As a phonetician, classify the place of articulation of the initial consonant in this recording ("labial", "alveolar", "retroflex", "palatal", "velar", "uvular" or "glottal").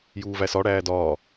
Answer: palatal